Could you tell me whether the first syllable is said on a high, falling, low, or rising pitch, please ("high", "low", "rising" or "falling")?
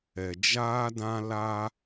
low